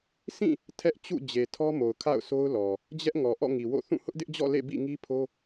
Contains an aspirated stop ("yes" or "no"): yes